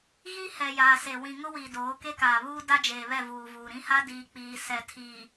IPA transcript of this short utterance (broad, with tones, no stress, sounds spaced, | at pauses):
ɣ i˦ h ɛ˨ j aː˨ s e˨ w ĩ˨ ŋ ʊ˦ w iː˨ d oː˨˦ k e˦ k aː˨ β uː˦ d a˦ d͡ʒ eː˨ β ɛ˦˨ v uː˨ v uː˨ ɾ ĩ˦ h a˦ d iː˨ k͡p iː˨ s ɛ˨ tʰ iː˨